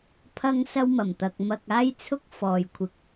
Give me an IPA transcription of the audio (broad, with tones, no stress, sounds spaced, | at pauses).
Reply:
pʰ ɐ˧ ŋ s ɐ˧ w m ɐ˨˩ m t̪ ɐ˨ k̚ m ɐ˨ k̚ aː˧ j t͡sʰ ʊ˧ k̚ f ɔː˨ j kʷʰ ɪ˨ k̚